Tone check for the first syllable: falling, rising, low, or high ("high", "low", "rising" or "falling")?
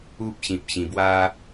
high